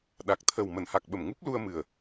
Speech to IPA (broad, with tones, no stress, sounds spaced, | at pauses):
ɗ a˨˩ k̚ t̪ʰ ə˨˩ w m ə˧˩ n h a˨˩ k̚ ɓ ə˧˩ m ŋ u˦˥ p̚ l u˧ ə̯ m ɨ˨˩ ə̯